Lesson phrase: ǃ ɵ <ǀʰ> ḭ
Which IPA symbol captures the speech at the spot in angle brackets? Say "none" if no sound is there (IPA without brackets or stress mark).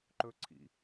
ǀʰ